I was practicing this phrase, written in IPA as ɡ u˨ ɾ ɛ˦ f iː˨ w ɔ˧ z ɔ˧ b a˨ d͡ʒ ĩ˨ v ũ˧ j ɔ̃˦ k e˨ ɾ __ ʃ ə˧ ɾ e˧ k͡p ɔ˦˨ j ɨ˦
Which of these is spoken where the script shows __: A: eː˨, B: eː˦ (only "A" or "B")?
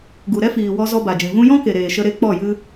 A